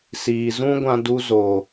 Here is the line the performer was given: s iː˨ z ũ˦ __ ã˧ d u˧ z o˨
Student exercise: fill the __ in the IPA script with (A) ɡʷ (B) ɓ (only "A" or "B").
A